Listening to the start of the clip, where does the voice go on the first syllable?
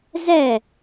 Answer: falling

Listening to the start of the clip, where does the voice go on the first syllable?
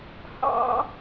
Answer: high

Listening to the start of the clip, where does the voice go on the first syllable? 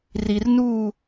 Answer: low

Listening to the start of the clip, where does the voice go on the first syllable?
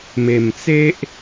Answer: low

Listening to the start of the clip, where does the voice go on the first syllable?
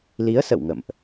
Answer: rising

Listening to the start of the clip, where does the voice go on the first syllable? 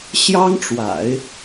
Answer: high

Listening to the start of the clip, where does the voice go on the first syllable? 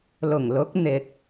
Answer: low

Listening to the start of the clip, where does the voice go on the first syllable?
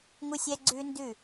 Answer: high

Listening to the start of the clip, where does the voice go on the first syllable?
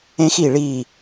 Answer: high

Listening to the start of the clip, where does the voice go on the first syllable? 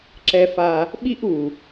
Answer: high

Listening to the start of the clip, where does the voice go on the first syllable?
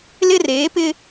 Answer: high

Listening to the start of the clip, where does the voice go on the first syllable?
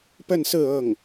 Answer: falling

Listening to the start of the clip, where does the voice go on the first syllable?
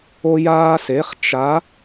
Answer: high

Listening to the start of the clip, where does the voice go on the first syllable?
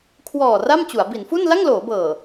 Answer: low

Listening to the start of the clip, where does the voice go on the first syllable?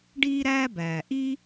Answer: high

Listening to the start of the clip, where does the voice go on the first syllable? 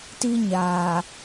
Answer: high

